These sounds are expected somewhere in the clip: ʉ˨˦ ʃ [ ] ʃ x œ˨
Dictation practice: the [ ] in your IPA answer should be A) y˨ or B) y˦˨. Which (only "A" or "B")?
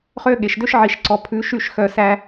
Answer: B